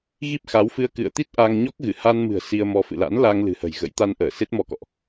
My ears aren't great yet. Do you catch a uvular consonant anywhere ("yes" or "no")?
no